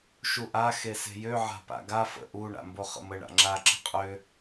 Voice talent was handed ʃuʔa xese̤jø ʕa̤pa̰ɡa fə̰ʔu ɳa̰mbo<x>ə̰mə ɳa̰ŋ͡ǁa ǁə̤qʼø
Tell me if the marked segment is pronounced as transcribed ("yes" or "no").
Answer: no